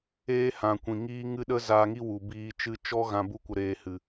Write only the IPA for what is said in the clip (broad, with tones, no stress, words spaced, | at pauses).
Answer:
eː˦hã˨ kʷĩ˨ ŋiː˦ ŋɨ˦ɗə˦ zaː˧ŋi˦ wu˨ biː˧t͡ʃɨ˦ t͡ʃɔ˦ɣã˧ bu˦kʷə˧ɾeː˧ hɨ˧